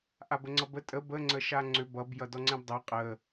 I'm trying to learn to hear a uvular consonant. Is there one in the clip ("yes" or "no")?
yes